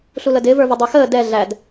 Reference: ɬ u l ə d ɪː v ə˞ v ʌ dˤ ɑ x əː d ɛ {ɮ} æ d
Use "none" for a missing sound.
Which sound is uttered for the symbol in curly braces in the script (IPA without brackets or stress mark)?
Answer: ɮ